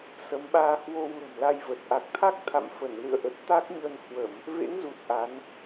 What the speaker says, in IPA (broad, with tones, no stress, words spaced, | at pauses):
sə˨˦mɓaː˧ hwo˧wlə̤˨˩mla˧jvə˨˩t̚ ʔa˨˩k̚t̪ʰa˦˥k̚t̪ʰa̰˧˨m fə˧˩n lɨ̰˧˨ə̯ʔə˨˩t̚ t̪a˦˥k̚ɲə˧n hwə˧˩˨m | vḛ˧˥ŋzu˨˩t̚ ʔa˨˦n